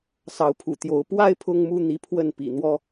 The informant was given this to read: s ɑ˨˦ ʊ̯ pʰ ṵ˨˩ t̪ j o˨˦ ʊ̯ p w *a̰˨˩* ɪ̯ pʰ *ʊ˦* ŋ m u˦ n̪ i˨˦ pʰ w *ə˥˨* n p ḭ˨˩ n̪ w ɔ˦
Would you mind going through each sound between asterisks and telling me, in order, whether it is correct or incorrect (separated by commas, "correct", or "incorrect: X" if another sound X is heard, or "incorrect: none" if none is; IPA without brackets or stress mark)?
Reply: incorrect: a˦, correct, correct